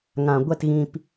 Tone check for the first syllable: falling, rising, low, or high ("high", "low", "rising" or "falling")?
low